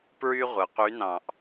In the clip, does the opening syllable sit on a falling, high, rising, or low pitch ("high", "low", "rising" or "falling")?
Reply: high